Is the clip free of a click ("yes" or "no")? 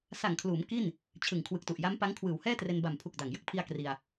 yes